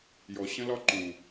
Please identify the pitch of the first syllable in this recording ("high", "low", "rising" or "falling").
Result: low